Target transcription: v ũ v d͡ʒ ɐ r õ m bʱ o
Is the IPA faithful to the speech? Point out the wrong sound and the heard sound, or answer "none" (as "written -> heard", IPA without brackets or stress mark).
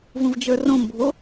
ɐ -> ə˞